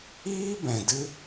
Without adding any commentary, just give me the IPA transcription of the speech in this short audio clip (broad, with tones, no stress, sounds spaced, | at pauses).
iː˦ b ɛ̃˨ d ɨ˦